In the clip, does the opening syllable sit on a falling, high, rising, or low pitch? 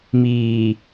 low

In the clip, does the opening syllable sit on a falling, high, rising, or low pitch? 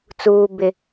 high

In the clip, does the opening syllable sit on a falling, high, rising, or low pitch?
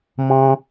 high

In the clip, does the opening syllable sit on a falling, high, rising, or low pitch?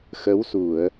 rising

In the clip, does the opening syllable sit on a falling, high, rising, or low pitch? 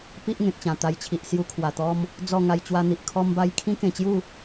high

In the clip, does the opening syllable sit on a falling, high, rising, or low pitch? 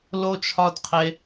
low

